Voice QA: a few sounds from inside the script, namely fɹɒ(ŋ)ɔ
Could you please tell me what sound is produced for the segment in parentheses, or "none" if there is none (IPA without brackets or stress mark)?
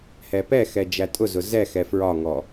ŋ